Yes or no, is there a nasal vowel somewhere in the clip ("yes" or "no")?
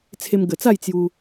no